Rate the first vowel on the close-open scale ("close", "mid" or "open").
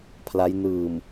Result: open